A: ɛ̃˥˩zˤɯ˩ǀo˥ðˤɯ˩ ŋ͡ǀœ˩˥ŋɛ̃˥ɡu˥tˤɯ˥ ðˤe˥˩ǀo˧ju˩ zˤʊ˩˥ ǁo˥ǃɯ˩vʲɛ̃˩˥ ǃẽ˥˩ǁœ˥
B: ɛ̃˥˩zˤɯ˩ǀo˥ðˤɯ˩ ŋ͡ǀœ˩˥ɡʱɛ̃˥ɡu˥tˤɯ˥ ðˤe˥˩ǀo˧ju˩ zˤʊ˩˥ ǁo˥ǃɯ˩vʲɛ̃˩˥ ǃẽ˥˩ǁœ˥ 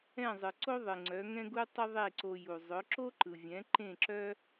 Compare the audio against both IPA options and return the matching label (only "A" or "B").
A